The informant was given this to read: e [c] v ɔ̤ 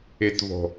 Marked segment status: incorrect: t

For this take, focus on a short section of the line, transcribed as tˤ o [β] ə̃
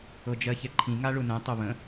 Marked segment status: correct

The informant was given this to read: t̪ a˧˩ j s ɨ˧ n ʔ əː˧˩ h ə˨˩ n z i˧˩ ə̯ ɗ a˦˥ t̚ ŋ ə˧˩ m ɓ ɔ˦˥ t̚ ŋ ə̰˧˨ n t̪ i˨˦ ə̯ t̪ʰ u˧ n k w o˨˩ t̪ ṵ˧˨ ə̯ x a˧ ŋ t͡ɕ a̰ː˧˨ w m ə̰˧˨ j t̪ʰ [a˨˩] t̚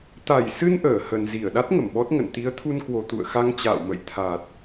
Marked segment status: correct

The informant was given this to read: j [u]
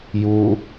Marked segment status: correct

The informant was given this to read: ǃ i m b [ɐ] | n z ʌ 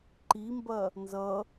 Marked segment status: correct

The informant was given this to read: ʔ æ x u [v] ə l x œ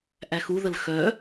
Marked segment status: incorrect: ð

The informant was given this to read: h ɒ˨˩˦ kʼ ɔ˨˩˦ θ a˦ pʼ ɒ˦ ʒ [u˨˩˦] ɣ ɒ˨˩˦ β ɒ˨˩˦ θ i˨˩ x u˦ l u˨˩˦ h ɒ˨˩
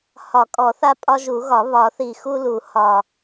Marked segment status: correct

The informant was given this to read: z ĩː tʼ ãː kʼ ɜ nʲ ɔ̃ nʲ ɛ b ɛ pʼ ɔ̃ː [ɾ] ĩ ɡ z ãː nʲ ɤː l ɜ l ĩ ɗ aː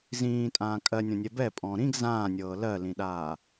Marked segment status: correct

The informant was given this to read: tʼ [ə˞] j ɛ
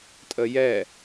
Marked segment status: incorrect: ə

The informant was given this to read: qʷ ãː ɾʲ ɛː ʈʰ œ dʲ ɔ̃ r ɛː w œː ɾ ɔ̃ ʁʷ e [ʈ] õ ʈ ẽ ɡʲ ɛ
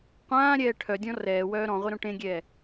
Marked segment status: incorrect: ɾ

